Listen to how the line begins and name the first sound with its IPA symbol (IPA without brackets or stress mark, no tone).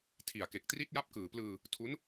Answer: tʰ